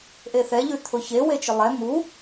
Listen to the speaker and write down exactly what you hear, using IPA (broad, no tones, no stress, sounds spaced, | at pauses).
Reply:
ʔ e θ ɛ ʎ ʉ t̪ʰ ʊ ç e w e t͡ʃ ʊ lˠ ɛ m u